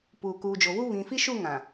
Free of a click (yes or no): yes